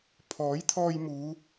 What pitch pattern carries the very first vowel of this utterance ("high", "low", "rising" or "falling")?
rising